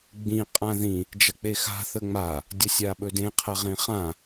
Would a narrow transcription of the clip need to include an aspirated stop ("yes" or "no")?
yes